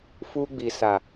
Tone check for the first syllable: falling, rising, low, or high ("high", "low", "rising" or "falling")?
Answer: high